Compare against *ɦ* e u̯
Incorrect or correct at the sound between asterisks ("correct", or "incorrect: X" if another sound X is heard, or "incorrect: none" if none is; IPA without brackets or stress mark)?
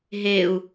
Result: correct